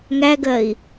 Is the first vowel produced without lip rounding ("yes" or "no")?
yes